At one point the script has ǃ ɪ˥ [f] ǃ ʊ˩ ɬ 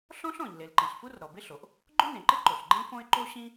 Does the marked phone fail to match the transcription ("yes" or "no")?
yes